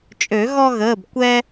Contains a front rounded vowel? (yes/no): yes